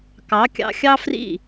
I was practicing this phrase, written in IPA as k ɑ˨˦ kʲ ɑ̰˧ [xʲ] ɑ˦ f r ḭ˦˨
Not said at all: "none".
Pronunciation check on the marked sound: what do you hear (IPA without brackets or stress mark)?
xʲ